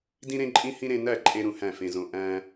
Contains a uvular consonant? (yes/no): no